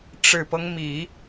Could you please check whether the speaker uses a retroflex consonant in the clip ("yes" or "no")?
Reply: yes